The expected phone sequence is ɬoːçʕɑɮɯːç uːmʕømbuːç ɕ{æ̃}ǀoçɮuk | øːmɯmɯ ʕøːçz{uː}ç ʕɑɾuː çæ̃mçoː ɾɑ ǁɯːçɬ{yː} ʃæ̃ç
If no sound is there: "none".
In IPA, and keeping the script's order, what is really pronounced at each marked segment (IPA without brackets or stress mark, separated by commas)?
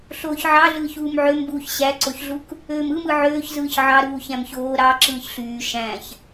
æ, ɯː, yː